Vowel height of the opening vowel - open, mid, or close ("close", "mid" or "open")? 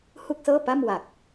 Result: close